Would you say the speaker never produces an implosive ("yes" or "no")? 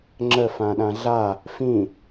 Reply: no